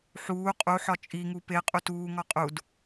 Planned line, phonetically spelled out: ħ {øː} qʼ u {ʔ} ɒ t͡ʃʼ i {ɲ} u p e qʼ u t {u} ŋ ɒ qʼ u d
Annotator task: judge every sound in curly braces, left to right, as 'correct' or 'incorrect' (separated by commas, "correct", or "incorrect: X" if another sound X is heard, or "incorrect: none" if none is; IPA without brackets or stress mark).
incorrect: uː, incorrect: ħ, incorrect: ŋ, incorrect: uː